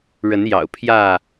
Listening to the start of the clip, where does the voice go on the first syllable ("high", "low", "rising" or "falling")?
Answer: rising